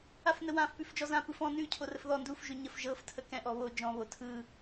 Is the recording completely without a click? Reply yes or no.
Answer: yes